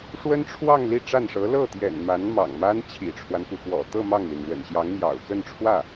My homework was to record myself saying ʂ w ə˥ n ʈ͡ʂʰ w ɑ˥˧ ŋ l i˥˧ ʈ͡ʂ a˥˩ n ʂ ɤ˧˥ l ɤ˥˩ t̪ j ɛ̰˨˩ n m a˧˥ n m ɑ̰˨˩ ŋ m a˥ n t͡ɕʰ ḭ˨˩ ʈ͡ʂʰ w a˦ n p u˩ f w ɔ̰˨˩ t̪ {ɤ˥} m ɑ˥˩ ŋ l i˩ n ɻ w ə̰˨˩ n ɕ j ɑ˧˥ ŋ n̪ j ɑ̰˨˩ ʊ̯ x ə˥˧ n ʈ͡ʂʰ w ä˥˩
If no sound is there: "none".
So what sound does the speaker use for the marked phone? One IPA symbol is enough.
ɤ˥˧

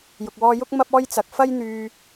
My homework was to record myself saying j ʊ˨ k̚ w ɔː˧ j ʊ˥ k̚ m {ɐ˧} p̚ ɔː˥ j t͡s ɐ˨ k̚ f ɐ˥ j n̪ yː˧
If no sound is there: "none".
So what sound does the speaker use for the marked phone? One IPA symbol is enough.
ɐ˥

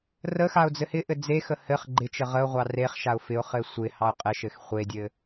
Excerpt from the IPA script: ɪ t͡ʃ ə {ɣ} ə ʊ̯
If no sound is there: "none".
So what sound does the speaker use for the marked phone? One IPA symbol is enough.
ʁ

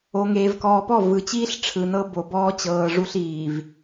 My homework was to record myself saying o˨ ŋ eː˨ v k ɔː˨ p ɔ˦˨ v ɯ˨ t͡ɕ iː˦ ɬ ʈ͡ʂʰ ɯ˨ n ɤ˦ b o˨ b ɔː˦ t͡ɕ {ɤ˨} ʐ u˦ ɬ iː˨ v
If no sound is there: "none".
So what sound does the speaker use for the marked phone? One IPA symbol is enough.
ɤː˨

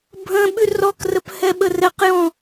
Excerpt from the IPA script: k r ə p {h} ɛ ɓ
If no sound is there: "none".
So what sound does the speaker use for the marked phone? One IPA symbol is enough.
h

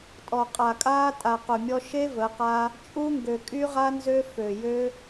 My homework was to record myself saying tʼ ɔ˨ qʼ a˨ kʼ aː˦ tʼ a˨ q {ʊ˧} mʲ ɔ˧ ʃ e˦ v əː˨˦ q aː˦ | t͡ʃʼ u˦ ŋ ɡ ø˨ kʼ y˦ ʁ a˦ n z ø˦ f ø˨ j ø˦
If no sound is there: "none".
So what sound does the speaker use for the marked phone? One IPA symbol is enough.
ʊ˨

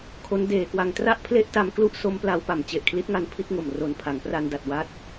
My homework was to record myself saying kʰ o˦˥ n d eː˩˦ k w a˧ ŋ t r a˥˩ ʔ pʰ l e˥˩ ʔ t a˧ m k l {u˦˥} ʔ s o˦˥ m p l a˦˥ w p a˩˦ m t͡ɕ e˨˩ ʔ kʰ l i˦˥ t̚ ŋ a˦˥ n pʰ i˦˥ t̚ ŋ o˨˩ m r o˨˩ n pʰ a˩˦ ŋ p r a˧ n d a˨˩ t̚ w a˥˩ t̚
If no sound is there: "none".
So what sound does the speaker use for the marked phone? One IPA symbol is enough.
u˥˩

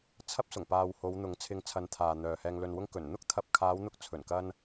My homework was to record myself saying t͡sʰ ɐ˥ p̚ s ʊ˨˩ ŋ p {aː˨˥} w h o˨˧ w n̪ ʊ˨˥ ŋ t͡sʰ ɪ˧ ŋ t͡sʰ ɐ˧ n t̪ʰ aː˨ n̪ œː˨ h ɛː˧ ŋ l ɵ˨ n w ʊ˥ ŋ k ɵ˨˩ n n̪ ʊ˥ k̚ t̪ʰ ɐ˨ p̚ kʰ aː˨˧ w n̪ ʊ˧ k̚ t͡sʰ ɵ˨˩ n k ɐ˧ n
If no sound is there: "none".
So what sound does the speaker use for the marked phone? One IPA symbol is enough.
aː˨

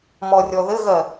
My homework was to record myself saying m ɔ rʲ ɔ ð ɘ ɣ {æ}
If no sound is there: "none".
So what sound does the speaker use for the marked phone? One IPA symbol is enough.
ɜ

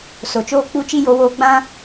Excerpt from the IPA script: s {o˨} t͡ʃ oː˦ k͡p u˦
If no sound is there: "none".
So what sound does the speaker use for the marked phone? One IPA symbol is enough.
o˨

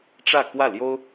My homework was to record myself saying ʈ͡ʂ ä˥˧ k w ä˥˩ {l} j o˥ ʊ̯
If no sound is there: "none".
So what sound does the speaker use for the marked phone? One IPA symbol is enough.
l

